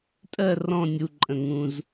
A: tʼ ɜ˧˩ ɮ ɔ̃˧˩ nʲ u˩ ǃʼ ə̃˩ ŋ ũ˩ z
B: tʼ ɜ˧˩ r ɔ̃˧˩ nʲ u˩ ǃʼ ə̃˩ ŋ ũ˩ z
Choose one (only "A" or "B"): B